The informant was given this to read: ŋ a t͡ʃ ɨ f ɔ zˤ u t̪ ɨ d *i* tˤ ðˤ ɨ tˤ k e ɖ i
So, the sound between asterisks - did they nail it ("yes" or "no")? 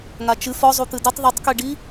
yes